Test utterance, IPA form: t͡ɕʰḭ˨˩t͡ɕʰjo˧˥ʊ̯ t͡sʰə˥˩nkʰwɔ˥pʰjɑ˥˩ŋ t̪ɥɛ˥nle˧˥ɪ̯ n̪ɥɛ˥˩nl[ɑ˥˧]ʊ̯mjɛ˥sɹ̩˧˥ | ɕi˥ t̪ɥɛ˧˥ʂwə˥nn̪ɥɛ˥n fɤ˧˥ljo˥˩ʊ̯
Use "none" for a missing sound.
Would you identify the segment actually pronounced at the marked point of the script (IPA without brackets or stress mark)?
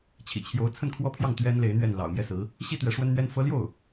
ɑ̰˨˩